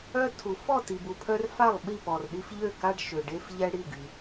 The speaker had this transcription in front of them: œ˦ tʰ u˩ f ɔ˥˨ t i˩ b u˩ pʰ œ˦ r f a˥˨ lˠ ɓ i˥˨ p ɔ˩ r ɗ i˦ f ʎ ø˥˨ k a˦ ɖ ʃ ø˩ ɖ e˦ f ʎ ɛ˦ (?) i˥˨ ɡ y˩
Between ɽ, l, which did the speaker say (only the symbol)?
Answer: ɽ